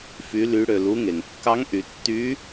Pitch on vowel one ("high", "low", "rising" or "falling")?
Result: rising